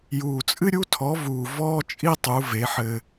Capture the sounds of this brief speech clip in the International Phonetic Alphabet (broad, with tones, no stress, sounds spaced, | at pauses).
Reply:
j uː˨˩ t͡sʼ ɨ˥ ɾʲ u˥ tʰ ɔ˩˥ v uː˨˩ v ɔː˥ t͡ʃʼ i˥ tˤ u˩˥ v e˩˥ ħ ɘː˧